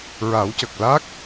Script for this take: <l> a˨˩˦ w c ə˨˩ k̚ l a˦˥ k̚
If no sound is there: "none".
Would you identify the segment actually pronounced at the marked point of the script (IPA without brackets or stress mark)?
ɹ